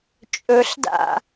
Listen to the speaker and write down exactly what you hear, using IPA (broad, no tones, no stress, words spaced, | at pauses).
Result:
t͡ʃʼɵɬda̰